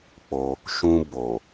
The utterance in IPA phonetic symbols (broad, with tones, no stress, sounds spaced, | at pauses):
k͡p o˧ | ʃ ũ˧ b o˨